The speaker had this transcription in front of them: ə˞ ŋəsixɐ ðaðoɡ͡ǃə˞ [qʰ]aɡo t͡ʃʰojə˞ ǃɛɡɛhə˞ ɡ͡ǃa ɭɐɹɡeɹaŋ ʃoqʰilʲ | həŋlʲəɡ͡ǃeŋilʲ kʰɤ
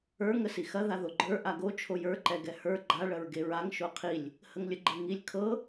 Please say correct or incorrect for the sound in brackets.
incorrect